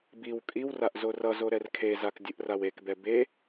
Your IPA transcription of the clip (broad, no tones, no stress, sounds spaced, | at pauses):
b i w kʼ i w r a ʔ z o r ʌ z o ɾ ɛ r kʰ e z a k dʲ ɯ ʔ r a w e k b ɛ b e